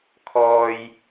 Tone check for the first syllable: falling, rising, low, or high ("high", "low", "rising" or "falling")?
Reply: high